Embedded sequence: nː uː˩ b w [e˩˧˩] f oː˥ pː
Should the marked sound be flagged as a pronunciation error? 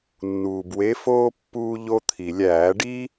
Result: yes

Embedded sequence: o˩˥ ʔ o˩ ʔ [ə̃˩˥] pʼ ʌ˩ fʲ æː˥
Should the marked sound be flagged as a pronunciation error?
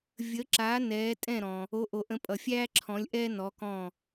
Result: no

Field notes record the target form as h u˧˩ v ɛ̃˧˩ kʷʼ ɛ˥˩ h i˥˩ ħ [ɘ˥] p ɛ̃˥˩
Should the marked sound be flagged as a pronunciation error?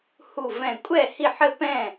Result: no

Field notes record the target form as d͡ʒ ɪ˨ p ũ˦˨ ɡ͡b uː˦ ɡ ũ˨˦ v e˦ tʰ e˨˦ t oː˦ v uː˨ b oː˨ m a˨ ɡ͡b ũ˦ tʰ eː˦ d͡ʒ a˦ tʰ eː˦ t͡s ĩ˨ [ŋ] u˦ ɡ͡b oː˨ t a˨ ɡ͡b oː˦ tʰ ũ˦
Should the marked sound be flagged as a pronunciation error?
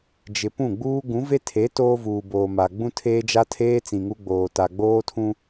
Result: no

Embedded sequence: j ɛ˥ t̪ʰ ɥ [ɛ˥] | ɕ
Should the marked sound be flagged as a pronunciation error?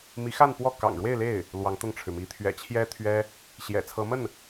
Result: no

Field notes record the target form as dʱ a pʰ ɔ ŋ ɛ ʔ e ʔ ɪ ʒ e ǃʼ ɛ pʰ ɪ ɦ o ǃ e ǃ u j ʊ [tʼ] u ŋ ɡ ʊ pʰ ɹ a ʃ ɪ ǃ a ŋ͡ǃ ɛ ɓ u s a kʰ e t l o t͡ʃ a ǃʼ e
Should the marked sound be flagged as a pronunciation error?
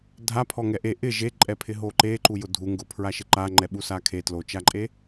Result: yes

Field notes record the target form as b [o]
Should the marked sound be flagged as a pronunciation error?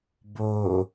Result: no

